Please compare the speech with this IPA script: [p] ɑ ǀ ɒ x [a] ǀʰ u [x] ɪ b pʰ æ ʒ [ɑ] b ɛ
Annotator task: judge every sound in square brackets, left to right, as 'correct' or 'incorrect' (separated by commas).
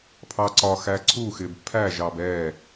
incorrect, incorrect, correct, correct